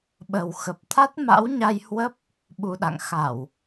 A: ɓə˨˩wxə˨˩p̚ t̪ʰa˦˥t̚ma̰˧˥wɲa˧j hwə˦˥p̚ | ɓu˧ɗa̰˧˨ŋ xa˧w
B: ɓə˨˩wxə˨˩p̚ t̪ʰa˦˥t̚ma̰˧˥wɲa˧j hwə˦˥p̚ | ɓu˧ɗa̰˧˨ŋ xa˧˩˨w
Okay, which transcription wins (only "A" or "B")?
B